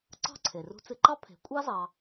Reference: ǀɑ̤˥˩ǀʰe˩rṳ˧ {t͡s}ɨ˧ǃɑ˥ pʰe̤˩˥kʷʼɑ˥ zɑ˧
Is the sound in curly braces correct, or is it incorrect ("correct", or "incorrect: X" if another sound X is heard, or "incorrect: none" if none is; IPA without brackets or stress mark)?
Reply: correct